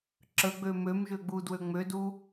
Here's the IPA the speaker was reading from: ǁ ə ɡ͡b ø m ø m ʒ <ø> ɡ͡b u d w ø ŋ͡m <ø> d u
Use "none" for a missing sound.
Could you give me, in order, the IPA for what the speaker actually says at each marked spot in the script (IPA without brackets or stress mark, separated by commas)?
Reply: ø, ø